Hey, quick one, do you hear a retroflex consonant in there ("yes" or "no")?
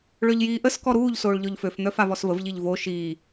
yes